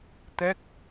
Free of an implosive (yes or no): yes